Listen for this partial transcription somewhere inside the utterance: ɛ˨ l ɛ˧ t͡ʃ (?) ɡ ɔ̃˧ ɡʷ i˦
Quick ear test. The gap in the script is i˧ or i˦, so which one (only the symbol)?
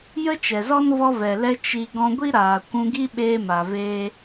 i˧